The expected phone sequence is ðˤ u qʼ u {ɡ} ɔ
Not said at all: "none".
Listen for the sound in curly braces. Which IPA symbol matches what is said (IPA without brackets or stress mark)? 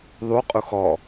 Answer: x